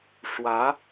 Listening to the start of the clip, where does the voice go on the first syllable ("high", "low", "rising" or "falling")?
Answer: rising